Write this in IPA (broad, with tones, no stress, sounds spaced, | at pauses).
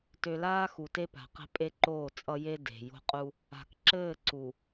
t ø˨ l aː˦ x u˨ t e˦ p a̤˨ q e̤˦ pʼ e˦ ǃ oː˦˨ t͡sʼ ʌ˦ j e˦ d e̤˨ j o̤˦ qʼ u˦ | a̤˨ k ǁ ɘː˦˨ ǀ u˨